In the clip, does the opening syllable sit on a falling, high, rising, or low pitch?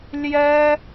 high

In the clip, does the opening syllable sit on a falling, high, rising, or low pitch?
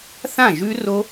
falling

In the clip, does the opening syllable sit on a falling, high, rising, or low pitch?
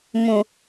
low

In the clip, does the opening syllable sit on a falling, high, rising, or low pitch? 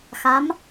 rising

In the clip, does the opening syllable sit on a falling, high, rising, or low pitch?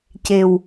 low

